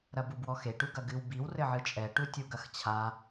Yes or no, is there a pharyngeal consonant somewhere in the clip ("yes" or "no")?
yes